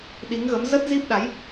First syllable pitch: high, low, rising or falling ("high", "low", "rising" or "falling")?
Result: rising